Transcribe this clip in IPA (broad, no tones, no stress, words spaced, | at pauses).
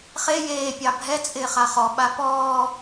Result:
χe jeː pʲɑbʱɛt͡sʼɪː χaχɔɓa pɔː